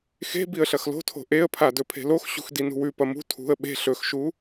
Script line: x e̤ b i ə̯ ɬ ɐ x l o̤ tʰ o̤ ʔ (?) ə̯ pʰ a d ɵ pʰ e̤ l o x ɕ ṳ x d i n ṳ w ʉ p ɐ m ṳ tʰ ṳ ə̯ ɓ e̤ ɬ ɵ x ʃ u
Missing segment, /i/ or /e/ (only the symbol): e